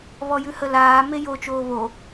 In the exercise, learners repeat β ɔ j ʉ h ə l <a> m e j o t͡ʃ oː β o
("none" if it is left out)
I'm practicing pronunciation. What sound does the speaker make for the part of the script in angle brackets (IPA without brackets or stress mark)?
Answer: aː